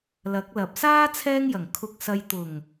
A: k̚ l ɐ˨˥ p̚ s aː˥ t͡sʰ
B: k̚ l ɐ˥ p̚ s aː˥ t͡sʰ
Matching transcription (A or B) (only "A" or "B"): A